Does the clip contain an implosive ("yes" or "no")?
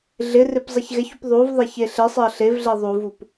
no